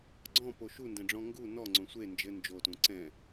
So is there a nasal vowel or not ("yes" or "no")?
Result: yes